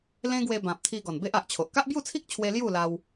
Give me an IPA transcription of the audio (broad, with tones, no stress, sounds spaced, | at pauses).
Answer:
l ẽ˦ ɡ w e˧ b ã˨ p̚ t̪ʰ i˧ ɡ ɔ˨˩ n b e˦ ʔ a˨ ʔ t͡ɕʰ o˨ ʔ k a˦ ʔ b j u˥˧ t͡sʰ i˦ k̚ t͡ɕʰ w e˧ l j u˥˧ l a˧ w